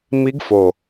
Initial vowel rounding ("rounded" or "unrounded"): unrounded